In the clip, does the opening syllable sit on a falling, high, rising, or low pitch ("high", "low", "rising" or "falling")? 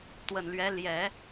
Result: low